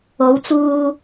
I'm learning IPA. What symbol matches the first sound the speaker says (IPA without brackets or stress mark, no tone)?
o